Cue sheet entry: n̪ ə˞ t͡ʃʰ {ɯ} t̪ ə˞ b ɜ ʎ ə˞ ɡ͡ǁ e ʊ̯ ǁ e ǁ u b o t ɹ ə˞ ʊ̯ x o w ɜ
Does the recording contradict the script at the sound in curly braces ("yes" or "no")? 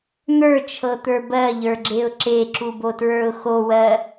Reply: yes